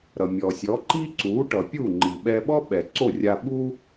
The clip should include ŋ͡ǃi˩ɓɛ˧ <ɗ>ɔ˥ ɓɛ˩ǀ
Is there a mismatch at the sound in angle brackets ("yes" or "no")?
yes